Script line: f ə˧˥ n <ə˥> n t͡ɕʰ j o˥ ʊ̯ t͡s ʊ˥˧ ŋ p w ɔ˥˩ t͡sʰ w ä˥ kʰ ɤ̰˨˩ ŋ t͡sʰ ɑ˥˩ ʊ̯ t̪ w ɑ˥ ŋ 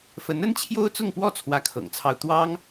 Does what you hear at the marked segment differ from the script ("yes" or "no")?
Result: no